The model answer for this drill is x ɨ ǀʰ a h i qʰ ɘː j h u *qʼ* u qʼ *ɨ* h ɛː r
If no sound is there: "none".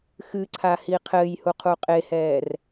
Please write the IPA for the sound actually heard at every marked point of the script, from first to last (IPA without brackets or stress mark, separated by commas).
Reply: qʰ, e